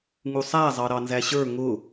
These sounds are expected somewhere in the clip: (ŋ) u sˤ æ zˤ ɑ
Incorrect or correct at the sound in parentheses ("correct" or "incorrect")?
correct